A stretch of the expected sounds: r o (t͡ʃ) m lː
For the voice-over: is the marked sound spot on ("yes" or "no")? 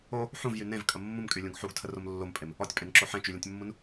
no